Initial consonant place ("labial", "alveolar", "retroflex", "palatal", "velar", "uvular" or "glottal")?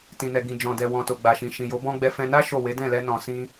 alveolar